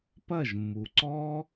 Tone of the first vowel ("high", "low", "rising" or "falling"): falling